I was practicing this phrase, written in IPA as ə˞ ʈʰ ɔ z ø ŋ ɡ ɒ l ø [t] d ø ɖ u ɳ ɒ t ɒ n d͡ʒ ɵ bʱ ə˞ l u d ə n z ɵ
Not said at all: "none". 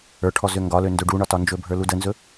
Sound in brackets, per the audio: n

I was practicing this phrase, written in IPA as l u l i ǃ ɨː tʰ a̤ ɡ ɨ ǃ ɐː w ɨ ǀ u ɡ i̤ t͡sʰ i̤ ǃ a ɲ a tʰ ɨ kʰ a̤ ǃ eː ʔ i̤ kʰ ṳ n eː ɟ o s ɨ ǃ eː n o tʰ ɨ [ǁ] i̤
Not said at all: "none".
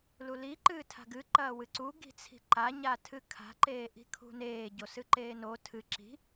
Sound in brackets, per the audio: ǁ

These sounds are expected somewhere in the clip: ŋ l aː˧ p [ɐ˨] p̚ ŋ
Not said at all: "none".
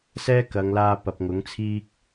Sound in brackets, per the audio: ɐ˨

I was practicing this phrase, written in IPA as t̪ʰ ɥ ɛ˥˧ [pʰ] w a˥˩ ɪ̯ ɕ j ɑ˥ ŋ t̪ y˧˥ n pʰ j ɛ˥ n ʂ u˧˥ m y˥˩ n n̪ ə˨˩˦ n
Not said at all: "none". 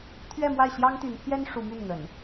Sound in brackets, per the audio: m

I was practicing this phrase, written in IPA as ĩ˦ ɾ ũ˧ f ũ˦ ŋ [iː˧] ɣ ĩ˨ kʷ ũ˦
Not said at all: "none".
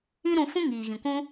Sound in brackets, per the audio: iː˨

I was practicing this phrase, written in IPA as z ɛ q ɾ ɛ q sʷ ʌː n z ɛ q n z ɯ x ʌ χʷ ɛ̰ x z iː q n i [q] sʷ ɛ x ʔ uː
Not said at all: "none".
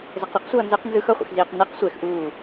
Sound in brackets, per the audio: q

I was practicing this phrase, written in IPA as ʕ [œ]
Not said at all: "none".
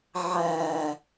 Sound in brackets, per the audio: æ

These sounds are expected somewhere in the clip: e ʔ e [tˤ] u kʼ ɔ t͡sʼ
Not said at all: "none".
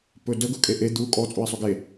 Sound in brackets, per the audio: d̪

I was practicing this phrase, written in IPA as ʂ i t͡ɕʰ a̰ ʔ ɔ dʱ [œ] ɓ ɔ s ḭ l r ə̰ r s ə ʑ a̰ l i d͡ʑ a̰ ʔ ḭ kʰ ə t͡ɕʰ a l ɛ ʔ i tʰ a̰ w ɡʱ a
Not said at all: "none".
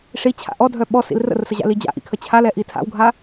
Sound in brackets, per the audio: œ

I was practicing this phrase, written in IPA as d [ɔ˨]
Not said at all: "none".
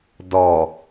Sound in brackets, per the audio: ɔ˨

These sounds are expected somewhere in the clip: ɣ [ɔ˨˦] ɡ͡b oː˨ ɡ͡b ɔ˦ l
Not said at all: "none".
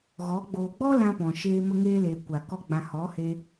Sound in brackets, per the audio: ɔ˨˦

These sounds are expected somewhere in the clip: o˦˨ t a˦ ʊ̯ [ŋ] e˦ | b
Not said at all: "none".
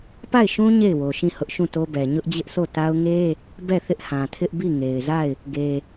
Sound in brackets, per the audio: ŋ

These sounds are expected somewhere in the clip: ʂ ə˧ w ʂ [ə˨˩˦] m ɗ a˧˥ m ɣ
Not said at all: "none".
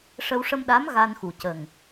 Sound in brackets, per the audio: ə˧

